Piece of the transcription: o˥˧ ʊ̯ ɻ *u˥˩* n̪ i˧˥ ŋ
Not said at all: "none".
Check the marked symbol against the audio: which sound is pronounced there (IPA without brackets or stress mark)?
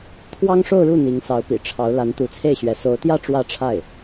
u˥˩